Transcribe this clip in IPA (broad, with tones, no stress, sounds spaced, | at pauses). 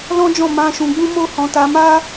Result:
l ɔ̃˦ d͡ʒ ɔ̃˦˨ m ã˧ ʃ ũ˧ ɡ͡b ũ˦ m o˦ h ɔ̃˧ t a˧ m a˦